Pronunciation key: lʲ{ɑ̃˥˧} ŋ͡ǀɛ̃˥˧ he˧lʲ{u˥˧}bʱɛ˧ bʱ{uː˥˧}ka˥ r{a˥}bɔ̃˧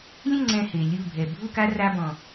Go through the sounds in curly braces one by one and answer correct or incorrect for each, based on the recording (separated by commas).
incorrect, correct, incorrect, correct